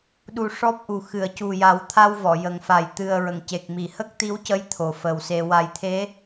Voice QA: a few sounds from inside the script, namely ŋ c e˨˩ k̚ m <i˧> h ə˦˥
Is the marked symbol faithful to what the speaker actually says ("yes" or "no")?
no